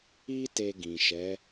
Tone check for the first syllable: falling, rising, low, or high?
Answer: high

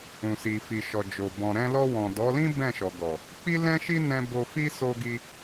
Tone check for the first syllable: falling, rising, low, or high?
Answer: low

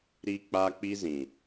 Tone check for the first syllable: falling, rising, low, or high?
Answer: high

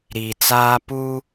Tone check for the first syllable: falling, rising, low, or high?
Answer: low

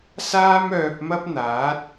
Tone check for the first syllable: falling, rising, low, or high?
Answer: high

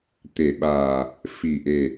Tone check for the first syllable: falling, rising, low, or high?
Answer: low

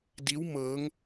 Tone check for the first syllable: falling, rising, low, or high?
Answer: rising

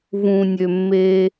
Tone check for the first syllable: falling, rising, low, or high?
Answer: low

